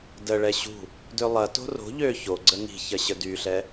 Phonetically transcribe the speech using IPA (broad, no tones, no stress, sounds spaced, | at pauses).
d ə ɭ ɛ ɕ ṳ | d ø lˠ ɐ t o̤ r o̤ ʎ ø ç o ɡ͡ǀ ə ŋ i̤ ç ɐ ɕ ə d y ɬ ɛ